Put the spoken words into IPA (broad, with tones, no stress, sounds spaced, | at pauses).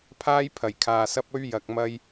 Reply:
pʰ aː˥ j pʰ ɐ˨˩ j kʰ aː˨ s ɐ˥ p̚ ɵ˥ ɥ j ɐ˧ k̚ m ɐ˥ j